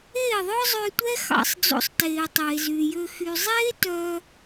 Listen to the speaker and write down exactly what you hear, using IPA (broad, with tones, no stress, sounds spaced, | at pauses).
eː˦˨ ðˤ œ˦ zˤ ø˧ tʷ ɛ˦ x ɑ̰˧ sˤ d͡z o̰˧ sˤ t eː˨ tˤ eː˨ z yː˨ j ø˧ x y˨ zˤ eː˦ t œ˧